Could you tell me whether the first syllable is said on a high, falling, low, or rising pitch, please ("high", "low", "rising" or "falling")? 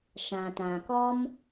low